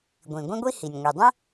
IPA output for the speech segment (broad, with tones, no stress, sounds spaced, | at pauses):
ɡʷ ĩ˩ ɡʷ ĩ˥ ɡʷ i˥ h i˩ nʲ ŋʷ i˩ dˤ ə̃˥